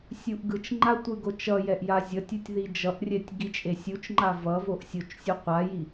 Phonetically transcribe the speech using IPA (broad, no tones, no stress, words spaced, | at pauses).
sʲuʔɡɯt͡ʃŋ͡ǃa tʷɯɡot͡ʃʌjɛʔ jazʲʌtʲutʲ ðid͡ʒʌʔrʲɛtʲ ɡit͡ʃʼesʲut͡ʃŋ͡ǃa vʌvoʔ sʲot͡ʃsʲu qʷaji